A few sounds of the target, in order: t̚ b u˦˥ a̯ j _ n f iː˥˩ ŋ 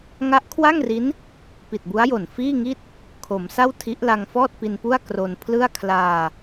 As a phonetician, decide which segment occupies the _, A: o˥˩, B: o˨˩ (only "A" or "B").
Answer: B